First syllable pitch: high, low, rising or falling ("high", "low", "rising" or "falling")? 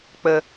low